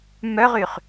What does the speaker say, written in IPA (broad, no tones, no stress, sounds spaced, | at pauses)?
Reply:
m œ ʁ y χ